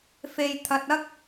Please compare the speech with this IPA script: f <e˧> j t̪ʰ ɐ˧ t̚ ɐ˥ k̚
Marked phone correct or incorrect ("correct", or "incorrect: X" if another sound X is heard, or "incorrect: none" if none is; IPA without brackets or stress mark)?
correct